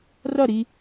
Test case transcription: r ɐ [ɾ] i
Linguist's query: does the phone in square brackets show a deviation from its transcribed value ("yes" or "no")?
no